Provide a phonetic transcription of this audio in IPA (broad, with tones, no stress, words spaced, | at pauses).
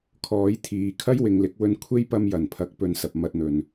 kʰɔː˨˥jt̪ʰiː˨kʰɐ˥j wɪ˨ŋlɪ˨˥k̚wɵ˧n kʷʰe˥jpɐ˧m jɐ˨˩npʰɐ˨˥k̚pɵ˨nsɐ˨p̚ mɐ˧t̚n̪ɵ˨n